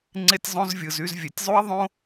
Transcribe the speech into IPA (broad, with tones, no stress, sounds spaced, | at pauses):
ŋ͡ǀ e˧ tʲ zˤ õ˧ z vʲ ɯ˨ z y˧ z vʲ e˨ tʲ zˤ u˦ ɐ̯ ðˤ õ˦